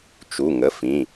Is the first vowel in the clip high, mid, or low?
high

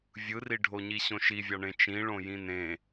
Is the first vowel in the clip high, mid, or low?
high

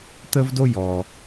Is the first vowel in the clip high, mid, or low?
mid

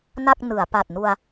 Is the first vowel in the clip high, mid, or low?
low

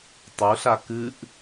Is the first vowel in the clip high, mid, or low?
high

